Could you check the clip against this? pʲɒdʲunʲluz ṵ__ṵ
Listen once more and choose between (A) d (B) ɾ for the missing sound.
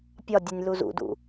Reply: A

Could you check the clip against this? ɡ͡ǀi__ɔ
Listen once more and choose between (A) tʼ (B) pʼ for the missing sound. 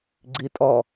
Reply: A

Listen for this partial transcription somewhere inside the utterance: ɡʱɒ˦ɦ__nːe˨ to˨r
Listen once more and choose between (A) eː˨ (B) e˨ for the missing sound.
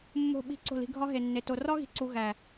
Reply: B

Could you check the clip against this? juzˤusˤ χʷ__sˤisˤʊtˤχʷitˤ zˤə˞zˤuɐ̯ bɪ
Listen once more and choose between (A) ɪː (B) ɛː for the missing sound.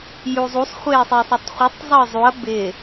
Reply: A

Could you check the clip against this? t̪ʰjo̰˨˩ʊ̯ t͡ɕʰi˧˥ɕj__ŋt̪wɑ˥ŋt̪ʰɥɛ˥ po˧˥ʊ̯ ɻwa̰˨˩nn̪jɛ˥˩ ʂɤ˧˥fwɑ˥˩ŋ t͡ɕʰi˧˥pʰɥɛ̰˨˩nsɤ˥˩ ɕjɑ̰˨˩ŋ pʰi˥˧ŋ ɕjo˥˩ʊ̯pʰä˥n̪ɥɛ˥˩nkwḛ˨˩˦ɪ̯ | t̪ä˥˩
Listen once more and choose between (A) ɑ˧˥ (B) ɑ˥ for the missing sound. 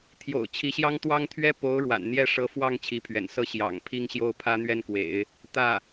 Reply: B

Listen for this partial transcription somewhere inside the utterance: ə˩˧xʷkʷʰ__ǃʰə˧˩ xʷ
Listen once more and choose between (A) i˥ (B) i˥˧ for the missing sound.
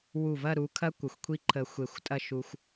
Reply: A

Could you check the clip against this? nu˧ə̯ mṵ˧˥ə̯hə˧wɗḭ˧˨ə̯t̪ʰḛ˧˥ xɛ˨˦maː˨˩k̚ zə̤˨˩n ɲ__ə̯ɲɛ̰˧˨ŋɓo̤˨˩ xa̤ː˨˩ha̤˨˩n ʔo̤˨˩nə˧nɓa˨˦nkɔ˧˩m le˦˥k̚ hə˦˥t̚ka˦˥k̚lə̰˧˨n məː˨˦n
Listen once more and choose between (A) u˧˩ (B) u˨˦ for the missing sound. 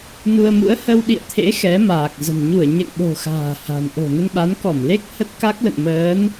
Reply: A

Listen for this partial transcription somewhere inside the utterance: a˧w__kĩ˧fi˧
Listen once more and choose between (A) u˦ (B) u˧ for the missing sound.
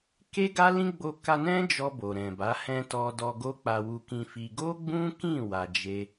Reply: B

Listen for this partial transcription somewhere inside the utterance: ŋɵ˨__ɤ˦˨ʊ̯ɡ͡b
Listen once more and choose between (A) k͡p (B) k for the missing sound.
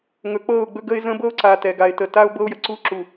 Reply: A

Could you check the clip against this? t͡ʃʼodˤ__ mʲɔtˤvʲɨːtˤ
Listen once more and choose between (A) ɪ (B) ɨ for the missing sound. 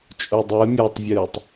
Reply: B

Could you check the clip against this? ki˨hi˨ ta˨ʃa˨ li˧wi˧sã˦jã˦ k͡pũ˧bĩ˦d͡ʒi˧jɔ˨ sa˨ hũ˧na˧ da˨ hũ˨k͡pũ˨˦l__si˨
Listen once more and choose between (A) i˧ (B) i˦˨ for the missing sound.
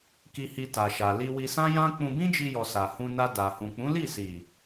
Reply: B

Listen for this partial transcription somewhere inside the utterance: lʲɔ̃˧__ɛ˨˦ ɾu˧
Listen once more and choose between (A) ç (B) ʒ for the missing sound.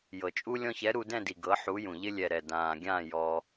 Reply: A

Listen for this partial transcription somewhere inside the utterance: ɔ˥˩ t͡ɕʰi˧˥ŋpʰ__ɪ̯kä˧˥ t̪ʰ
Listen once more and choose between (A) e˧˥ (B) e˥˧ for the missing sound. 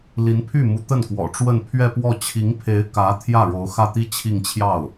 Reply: A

